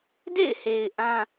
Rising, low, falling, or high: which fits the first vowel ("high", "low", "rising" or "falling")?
falling